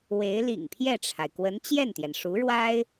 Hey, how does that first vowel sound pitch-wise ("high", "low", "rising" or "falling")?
rising